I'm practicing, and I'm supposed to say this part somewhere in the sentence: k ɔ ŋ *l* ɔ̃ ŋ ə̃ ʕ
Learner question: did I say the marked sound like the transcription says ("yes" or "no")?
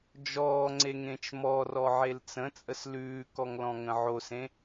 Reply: yes